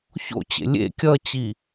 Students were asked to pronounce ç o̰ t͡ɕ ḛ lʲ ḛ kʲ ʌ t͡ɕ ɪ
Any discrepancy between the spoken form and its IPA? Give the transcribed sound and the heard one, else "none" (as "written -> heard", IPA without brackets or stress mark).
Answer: ɪ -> i